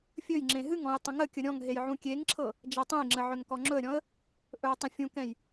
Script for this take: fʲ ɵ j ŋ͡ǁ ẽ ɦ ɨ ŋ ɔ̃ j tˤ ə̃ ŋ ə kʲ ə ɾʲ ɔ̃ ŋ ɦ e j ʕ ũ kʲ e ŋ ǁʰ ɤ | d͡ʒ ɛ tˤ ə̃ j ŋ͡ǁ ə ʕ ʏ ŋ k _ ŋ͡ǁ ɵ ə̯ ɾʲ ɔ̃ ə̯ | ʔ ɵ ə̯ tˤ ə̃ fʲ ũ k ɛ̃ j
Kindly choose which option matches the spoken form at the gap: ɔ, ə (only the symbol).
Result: ɔ